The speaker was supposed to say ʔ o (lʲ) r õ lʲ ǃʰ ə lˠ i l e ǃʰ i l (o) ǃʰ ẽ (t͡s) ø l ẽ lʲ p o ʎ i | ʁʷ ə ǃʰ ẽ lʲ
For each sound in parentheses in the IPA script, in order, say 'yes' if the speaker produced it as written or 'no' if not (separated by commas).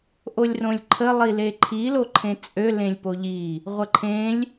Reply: yes, yes, no